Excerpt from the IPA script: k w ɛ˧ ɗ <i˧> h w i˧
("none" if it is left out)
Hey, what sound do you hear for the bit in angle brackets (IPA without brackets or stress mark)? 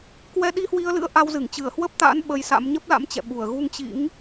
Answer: i˧